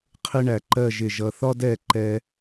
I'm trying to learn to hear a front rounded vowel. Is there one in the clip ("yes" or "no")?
no